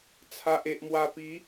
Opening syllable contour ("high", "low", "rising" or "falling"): low